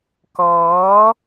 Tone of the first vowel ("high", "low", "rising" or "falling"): rising